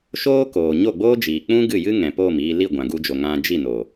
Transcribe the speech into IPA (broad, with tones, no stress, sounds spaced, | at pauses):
ʃ oː˦ k oː˨ ɲ o˦˨ ɡ͡b oː˦ d͡ʒ iː˨ k͡p ũ˦ ɡ ɨ˦˨ j ɨ˦ ŋ ɛ̃˨ p oː˦˨ m iː˧ l i˦˨ ɡʷ ã˨ ɡ u˧ d͡ʒ o˨ ŋ ã˧ d͡ʒ i˦˨ n o˨